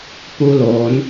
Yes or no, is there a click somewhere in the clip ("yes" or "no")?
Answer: no